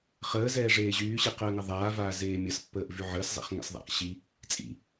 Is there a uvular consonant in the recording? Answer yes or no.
yes